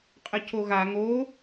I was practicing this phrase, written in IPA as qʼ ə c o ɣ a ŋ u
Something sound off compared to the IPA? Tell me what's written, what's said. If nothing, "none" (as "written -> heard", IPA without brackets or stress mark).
u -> o